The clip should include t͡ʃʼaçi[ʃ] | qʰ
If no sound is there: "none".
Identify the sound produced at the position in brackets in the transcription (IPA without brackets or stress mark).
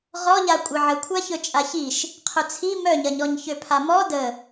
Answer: ʃ